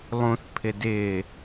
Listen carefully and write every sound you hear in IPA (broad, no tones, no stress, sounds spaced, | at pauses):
lˠ ũ θ pʰ ɪ d ɪː